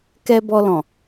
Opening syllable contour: high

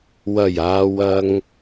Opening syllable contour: low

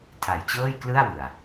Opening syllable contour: low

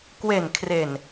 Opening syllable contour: low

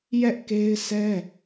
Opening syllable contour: high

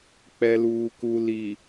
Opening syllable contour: low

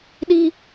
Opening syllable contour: high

